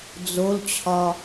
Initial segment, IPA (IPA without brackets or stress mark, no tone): d͡z